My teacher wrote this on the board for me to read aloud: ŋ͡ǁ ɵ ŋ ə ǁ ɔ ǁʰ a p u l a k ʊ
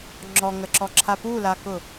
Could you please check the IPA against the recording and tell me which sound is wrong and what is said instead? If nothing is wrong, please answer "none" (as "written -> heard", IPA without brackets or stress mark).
ɵ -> ɔ